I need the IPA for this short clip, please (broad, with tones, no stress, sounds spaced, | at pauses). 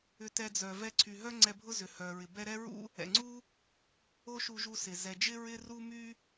ʏ˧ t ɛ˧ d͡z œ˩ v ɛ˧ ǀʰ y˩ ɦ œ˥ ŋ͡ǀ ɛ˧ bʱ ʊ˥ z ʏ˩ h œ˩ ɹ ɪ˩ b ɛ˥ ɾ ɛ˥ ɹ ṵ˥ | ɛ̰˩ ŋ͡ǀ u˥ | o˥ ʃ u˧ ʒ u˧ s ɪ˩ z ɛ˩ d͡ʒ ɪ˥ ɹ ɪ˥ r u˥ m y˥